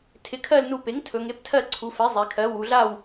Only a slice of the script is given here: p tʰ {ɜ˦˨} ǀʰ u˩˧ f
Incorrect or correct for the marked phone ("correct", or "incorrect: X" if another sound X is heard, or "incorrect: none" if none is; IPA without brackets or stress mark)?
correct